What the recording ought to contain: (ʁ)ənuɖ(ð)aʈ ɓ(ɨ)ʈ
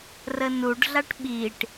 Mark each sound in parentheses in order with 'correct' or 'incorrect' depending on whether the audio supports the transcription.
incorrect: r, incorrect: ɮ, incorrect: i

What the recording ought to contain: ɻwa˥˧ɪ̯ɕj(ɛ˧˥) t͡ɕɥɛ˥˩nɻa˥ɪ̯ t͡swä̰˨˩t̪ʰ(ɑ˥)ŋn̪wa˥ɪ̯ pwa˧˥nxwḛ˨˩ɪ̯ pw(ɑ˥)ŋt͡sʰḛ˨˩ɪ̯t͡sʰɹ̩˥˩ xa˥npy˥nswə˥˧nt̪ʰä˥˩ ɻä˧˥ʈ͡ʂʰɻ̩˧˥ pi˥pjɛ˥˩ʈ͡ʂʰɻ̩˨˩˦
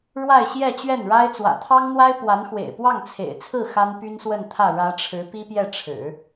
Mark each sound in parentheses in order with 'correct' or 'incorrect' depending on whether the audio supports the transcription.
incorrect: ɛ˥˧, correct, incorrect: ɑ˥˩

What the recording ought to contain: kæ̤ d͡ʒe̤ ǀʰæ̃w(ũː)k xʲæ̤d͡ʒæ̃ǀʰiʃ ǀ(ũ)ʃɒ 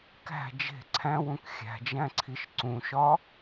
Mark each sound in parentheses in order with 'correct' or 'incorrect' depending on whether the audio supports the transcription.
incorrect: ũ, correct

